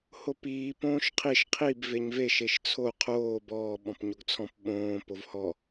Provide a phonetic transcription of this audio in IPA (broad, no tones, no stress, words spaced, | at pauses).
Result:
hopiː põːʃqʰiʃ qʰib veɲve ʃeʃt͡sʰo qʰoːb ɔː ɓɔ̃pɲoɡt͡sʰɔ̃p ɓõː povhɔ